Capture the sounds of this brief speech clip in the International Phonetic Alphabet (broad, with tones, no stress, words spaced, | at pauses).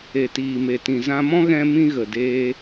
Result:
e˨tiː˨me˨ tĩ˨zã˧mɔ̃˦ ɣɛ̃˦mĩ˦ ɣə˨deː˧